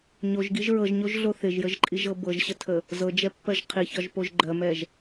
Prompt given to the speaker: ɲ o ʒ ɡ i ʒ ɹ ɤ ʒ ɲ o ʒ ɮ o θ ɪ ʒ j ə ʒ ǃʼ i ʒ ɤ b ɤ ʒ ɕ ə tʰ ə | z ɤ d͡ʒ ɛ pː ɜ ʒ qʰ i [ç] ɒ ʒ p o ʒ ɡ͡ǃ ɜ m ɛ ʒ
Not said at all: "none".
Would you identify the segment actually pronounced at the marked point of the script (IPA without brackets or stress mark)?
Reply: ç